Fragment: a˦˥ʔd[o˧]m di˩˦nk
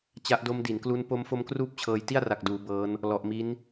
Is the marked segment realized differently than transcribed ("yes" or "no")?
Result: yes